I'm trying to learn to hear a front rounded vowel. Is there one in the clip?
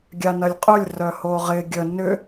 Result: yes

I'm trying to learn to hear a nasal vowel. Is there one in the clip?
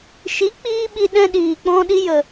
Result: yes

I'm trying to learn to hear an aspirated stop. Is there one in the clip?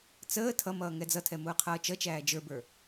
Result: yes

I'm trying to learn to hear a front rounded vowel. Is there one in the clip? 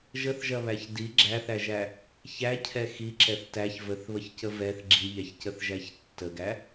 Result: no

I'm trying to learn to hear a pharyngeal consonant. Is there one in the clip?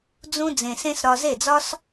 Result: no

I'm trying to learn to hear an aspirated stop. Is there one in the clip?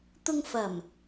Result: no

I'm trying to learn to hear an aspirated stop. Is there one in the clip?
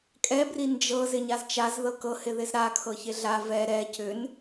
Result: yes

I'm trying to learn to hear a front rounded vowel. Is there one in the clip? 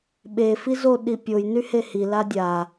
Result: yes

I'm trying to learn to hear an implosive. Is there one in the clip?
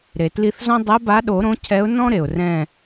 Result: yes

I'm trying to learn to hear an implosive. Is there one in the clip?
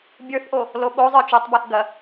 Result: yes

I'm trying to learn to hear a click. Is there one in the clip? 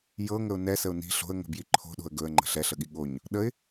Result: yes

